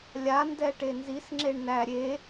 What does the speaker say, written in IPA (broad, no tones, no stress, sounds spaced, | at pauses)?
lʲ a n d ɛ ʈ e n z i s ŋ͡ǁ e ɳ n æ ɾʲ e